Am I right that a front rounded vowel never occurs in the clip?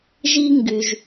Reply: no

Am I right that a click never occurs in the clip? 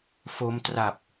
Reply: yes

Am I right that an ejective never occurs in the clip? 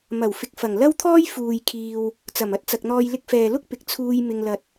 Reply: yes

